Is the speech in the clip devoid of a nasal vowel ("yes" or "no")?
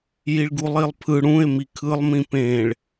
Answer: no